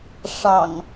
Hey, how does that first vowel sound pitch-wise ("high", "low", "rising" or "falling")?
low